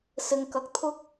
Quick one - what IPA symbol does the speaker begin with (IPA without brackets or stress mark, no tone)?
s